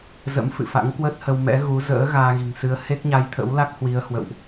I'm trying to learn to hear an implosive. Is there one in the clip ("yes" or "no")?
no